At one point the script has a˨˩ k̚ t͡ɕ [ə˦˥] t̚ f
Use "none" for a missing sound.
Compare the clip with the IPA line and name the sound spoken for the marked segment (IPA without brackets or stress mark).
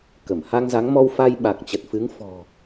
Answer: ə˨˩